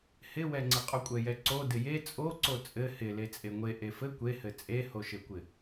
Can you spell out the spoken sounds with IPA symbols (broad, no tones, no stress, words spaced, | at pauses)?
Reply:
hɪwɛŋ͡ǀɪ qʼokʷʼɛjɛǀo dɪje t͡sʼoǀo t͡sʼɘ hɪ let͡sʼeŋʷe ʔefɘ kʷehɘ t͡sʼehoʃɘkʷɪ